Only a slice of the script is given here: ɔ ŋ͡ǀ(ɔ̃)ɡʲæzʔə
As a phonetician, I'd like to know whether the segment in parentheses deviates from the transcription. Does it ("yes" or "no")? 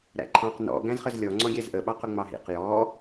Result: no